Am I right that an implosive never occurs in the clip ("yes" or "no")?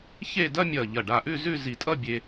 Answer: yes